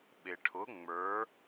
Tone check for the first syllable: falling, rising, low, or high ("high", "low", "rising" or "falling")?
low